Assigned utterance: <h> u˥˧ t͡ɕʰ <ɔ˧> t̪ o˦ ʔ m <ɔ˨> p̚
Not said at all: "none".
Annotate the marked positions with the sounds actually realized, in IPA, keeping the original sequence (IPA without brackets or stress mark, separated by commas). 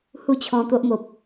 h, ɔ̃˧, o˨